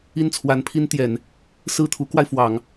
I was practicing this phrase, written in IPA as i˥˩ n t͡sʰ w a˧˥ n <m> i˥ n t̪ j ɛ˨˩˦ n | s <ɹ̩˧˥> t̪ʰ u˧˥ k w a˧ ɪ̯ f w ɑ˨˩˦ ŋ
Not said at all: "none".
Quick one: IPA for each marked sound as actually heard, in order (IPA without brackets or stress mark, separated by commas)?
pʰ, ɹ̩˥˩